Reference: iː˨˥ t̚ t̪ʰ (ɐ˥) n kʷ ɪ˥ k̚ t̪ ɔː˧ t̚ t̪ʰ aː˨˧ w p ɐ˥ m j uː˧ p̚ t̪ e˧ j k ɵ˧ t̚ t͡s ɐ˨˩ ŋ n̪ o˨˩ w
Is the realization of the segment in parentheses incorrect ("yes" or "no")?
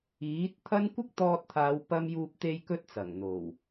no